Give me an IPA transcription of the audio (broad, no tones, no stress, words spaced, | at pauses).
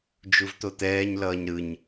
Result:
d͡ʒuvt̪ot̪ɛːɲ lʌːɲɾɯɲ